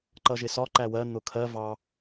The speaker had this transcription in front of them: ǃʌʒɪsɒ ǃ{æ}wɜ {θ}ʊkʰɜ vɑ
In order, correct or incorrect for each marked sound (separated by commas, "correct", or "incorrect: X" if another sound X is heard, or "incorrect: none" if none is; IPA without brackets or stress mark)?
correct, incorrect: n̪